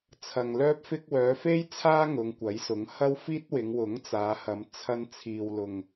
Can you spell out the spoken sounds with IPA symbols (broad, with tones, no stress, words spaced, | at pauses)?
t͡sʰɐ˨ŋlœː˥p̚fɪ˥k̚ wœː˨˧fe˥jt͡sʰaː˥ ŋʊ˨˧ŋkʷɐ˨˥jsʊ˨˥ŋ hɐ˥wfiː˥t̚wɪ˨˧ŋ wʊ˨˥ŋt͡saː˨˧hɐ˨˧m t͡sʰɐ˧nt͡sʰiː˨wlʊ˨ŋ